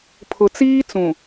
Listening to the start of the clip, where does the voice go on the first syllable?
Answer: low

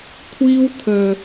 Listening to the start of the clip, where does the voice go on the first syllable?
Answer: high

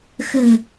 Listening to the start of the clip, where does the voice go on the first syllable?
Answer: low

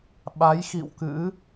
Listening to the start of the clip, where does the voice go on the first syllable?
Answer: rising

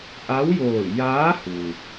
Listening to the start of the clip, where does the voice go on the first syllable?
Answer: rising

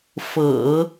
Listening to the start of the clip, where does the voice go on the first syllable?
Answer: low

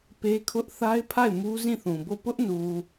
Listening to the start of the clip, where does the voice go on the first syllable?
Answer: high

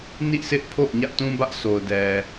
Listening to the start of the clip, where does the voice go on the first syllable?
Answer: falling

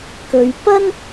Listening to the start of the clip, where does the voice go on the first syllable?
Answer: low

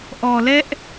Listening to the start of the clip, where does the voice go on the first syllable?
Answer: low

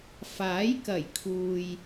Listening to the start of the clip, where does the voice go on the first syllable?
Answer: rising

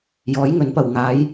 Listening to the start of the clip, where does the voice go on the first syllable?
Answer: rising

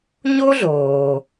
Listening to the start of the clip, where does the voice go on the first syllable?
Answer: high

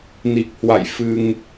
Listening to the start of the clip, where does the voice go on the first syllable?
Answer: low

